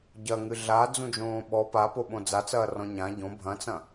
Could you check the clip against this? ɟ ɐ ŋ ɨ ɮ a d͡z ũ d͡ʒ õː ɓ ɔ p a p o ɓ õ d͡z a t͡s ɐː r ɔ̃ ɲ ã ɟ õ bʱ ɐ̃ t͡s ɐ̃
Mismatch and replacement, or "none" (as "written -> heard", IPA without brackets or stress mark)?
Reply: none